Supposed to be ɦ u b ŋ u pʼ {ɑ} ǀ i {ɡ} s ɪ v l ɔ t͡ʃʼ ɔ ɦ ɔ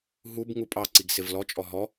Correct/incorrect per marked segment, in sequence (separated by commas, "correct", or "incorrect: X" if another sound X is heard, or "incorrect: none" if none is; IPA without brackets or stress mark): correct, correct